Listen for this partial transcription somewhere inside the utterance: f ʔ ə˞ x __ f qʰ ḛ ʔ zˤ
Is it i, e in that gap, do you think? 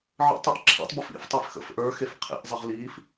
e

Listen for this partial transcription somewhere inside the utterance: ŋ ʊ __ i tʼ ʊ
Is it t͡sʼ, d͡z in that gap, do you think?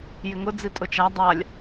d͡z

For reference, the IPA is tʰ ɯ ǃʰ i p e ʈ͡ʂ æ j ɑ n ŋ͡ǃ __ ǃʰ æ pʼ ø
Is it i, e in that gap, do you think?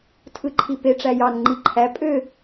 i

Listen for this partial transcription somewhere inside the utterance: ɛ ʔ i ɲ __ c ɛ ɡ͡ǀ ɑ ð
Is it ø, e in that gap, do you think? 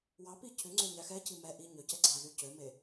ø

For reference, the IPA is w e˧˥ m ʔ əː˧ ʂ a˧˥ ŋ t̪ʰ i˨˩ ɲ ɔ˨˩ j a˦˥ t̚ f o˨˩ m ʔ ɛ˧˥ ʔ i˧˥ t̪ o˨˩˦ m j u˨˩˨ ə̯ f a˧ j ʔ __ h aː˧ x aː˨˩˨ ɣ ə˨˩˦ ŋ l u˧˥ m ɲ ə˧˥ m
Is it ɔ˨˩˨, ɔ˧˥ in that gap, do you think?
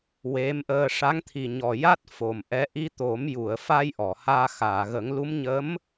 ɔ˨˩˨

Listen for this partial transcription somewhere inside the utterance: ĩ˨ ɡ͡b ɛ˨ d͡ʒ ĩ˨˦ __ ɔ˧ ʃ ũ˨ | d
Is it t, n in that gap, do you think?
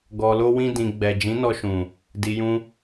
n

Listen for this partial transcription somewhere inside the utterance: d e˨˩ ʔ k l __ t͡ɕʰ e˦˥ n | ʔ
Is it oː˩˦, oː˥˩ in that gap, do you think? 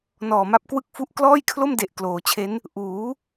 oː˩˦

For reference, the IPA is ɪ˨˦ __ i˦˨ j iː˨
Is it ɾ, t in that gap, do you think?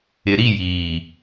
ɾ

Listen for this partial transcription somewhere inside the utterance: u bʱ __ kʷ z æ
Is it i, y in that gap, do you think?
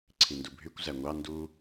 y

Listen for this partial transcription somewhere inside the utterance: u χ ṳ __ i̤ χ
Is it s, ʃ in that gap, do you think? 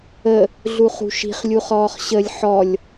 ʃ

